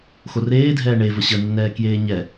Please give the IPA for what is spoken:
x o r eː dʱ ɛː ɳ e v ə ɕ ə nː ɛː k j eː ɲ ɛ

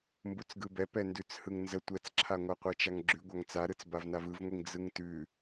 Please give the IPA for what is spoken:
m b u t͡s ɡ ɯ b ɛ p ɛ n d ʉ t͡s h ɯ ŋ n z ə tʷ ɛ t͡s ǁʰ a ŋʷ a qʷ ɛ t͡ʃ a ŋ ɡ͡ǁ ʉ ɡʷ a ŋ t͡s a ɾ ɯ t͡s b a v n a v ɯ v ŋʷ i ŋ d͡z ɯ ŋ t ʉ

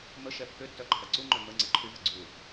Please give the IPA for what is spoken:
m ə ʃ ɛ pː ʏ tː œ ǃʰ ɐ ǀ u ŋ͡ǃ œ m ə ŋ͡ǀ ɛ ǃʰ y v ɪ ɡ͡ǀ u

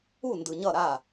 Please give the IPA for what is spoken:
u˦˨ n d ɯ˨ ɲ ʌ˦˨ ɾ a˦˨

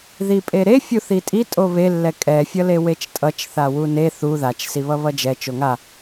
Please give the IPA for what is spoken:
ð i pʼ e ɾ e fʲ u θ i tʼ i tʼ o β e lː ɛ kʼ ɛ fʲ ʌ l e w e t͡ʃ tʼ ʌ t͡ʃ θ a w u n e θ u ð a t͡ʃ s i β ʌ β ʌ d͡ʒ ɛ t͡ʃ o ŋ a

